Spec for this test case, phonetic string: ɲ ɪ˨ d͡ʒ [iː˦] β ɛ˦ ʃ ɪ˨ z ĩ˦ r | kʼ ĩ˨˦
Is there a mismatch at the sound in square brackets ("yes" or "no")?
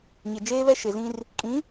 yes